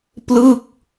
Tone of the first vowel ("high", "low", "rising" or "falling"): falling